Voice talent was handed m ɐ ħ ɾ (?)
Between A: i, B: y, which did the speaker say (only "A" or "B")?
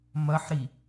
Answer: A